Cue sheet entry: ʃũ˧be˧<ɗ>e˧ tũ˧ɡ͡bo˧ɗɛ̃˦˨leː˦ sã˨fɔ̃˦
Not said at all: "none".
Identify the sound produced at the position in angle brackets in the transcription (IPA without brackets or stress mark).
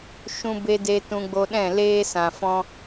d